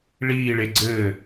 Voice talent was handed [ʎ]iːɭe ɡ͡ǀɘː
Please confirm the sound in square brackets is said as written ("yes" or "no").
no